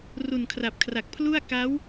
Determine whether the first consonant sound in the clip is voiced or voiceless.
voiced